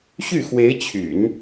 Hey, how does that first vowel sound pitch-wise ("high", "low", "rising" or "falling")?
falling